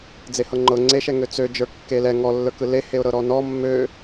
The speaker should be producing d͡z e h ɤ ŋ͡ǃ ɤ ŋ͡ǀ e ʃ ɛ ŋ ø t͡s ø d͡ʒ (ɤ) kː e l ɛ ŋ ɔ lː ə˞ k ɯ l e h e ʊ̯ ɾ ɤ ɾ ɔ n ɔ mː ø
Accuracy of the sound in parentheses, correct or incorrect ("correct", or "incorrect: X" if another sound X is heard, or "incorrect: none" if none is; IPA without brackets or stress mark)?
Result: incorrect: ə˞